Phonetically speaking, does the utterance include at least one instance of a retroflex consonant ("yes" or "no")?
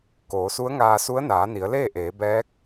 no